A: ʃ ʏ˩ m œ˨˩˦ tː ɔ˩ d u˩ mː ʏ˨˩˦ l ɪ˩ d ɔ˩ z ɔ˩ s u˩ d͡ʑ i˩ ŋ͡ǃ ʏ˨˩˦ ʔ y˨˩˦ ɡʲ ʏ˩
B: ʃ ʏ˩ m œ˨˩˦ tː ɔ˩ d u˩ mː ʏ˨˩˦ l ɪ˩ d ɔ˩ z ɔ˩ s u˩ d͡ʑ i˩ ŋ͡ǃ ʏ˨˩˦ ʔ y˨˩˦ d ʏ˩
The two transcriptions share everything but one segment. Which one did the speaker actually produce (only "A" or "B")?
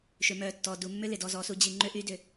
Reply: B